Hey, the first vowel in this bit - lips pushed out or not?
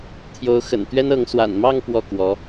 yes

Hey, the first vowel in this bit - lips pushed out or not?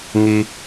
no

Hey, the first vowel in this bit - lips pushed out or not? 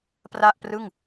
no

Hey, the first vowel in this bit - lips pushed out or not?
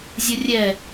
yes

